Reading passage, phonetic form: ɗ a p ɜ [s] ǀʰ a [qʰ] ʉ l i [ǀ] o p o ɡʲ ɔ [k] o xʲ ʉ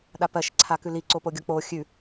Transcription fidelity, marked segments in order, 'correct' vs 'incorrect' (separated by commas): incorrect, incorrect, correct, incorrect